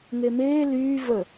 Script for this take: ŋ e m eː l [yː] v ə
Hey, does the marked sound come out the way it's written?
yes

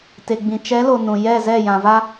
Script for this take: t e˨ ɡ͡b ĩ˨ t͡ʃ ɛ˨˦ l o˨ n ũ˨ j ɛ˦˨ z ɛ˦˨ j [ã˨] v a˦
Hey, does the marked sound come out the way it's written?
yes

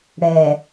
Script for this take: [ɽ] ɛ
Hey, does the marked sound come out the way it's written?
yes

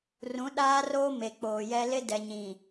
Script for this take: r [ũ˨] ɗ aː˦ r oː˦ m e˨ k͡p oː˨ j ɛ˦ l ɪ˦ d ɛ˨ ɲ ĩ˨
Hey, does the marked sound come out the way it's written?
no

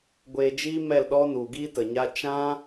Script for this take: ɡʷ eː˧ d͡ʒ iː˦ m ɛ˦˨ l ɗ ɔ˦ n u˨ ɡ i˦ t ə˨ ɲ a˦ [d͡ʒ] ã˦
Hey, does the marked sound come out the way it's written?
no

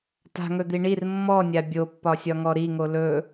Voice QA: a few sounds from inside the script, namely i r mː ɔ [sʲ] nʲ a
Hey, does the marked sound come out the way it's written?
no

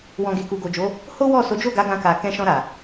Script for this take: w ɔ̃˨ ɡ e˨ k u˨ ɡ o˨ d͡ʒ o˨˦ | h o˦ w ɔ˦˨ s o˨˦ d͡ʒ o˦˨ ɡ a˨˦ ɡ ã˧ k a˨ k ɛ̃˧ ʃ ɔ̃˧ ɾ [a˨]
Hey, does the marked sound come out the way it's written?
yes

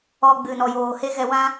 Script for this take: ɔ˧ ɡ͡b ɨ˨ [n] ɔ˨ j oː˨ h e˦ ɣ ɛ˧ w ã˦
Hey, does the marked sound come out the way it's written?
yes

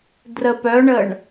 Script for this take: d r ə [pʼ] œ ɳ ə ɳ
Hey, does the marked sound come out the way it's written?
no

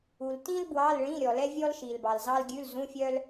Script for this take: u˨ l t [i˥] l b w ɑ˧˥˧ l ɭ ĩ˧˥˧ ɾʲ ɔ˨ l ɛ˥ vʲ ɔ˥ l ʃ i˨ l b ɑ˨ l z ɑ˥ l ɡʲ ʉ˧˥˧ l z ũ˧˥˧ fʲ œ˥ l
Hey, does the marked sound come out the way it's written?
no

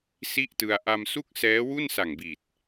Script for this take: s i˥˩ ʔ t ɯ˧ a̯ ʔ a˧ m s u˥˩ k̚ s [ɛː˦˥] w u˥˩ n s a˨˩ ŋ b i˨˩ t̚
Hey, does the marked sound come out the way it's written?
yes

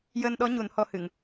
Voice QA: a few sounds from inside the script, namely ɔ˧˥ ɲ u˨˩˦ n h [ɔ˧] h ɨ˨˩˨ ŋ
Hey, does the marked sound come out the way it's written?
yes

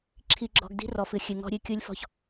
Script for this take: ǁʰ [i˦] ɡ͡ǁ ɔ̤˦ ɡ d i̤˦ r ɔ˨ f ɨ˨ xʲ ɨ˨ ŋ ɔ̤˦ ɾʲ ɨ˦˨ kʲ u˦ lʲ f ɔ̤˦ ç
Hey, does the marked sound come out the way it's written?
yes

